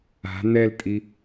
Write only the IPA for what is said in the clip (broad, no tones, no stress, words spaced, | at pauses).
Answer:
a̤ n̪ɛltʼi